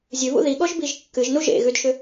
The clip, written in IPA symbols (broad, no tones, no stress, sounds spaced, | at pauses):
zʲ ʉ β ṵ ð i ɠ ɔ ʒ b i ʒ kː ɨ ʒ n u ʒ ḛ ɣ ʉ d ʃ ʏ